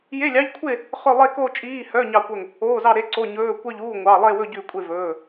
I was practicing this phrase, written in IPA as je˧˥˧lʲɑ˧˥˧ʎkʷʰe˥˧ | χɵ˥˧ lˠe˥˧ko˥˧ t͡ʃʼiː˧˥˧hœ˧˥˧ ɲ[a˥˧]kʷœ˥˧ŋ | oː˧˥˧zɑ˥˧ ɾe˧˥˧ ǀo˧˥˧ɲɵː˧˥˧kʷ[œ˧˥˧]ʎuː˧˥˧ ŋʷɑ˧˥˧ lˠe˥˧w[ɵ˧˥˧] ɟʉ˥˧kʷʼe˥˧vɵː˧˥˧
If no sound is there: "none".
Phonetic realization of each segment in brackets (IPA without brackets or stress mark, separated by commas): ɑ˥˧, œ˥˧, ɵ˥˧